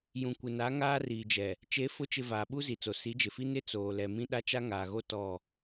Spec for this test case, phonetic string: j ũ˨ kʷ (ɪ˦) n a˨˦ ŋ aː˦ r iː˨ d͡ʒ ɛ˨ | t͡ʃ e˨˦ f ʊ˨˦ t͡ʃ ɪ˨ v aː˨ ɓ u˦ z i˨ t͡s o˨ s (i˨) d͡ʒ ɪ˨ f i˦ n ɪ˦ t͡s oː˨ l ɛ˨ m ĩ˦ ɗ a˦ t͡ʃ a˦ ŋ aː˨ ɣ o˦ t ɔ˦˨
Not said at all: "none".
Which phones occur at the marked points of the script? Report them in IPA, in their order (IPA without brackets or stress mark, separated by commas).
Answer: ɪ˨, i˨˦